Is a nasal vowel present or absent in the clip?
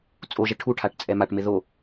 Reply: absent